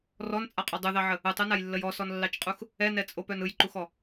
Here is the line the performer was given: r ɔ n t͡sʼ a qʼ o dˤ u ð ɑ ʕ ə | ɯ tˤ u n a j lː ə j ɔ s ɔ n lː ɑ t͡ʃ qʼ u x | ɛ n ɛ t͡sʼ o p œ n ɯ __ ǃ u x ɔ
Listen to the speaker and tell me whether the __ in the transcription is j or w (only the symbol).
j